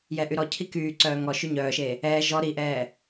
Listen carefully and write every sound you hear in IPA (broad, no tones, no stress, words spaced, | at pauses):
jɛʔyɾɔcʰi kyːǀœː ŋɔʃy ɲœːʃe | ɛː ʒɔ ɾiʔɛː